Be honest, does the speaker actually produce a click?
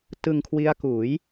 no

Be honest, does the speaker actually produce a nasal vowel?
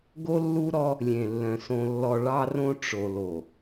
yes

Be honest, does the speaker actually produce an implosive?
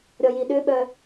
yes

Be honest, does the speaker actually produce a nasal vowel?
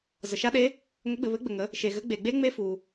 no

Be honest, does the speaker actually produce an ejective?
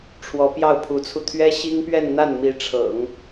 no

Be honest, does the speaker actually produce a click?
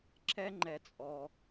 yes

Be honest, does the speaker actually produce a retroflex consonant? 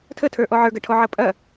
yes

